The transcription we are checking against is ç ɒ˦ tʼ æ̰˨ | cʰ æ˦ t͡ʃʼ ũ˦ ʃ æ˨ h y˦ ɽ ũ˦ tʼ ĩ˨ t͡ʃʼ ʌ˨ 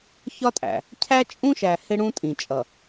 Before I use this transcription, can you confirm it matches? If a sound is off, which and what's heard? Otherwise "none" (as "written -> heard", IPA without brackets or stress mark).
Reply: y˦ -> ɪ˦